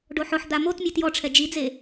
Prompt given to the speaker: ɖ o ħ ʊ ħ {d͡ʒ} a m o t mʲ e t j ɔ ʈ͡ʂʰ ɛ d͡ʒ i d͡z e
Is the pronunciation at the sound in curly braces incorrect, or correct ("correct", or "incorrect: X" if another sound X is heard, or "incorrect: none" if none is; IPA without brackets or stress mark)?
incorrect: d̪